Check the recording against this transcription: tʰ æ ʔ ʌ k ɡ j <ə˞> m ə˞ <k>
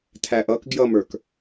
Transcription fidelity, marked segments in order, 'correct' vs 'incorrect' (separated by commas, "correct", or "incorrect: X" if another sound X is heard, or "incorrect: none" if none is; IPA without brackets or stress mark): incorrect: ʌ, correct